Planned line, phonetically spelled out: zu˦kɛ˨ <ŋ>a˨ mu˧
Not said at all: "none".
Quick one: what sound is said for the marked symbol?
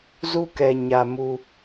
ɲ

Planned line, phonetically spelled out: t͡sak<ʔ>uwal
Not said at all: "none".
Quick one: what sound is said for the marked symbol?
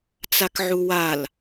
ʕ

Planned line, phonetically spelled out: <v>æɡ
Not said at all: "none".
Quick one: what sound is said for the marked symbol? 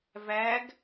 v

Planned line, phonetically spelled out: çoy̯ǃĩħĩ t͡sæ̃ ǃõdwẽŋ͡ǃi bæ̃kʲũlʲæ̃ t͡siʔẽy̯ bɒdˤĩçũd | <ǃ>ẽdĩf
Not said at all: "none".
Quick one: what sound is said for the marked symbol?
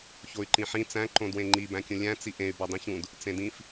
t͡s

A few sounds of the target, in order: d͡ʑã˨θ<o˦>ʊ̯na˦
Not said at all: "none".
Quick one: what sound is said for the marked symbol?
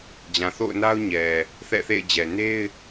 o̰˦˨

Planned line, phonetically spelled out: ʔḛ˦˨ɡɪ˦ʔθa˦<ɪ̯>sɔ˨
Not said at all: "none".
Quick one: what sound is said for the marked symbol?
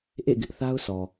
ʊ̯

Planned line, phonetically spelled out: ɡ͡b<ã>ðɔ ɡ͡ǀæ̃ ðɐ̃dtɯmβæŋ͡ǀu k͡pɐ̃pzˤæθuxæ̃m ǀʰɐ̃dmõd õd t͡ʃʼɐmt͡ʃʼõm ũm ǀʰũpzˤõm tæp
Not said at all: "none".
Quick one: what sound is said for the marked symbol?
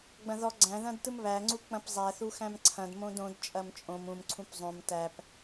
ɐ̃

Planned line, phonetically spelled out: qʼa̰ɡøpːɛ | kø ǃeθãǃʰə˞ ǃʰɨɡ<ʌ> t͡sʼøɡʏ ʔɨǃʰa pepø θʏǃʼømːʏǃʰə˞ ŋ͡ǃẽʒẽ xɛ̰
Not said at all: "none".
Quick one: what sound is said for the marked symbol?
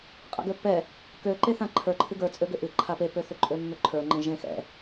ə˞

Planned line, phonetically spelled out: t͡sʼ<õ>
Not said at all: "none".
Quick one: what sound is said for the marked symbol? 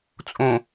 õ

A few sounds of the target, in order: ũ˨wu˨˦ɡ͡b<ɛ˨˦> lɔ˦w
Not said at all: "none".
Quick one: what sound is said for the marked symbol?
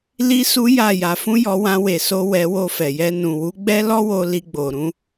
ɛ˦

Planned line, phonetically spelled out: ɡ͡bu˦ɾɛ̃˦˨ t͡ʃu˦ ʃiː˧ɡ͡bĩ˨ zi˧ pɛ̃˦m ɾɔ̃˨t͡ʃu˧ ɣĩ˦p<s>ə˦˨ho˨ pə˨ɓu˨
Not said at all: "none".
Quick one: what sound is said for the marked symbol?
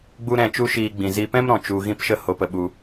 ʃ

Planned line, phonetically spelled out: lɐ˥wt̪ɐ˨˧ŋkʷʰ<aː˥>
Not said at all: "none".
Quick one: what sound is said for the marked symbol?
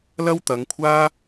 aː˥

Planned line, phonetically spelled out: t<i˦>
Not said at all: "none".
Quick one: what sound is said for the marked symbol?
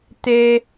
e˦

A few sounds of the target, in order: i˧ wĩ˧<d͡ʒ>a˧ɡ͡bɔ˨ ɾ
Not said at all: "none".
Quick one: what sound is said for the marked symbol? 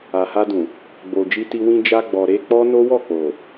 d͡ʒ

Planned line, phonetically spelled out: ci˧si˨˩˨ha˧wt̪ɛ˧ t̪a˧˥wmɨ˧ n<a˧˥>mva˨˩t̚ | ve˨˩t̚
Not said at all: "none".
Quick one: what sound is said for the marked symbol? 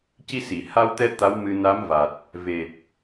a˧˥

